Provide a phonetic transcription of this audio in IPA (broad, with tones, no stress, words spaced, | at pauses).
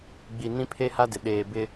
ɡ͡bi˨ nĩ˦pʰe˦ha˦dɪ˨ ɗeː˨ bɪ˦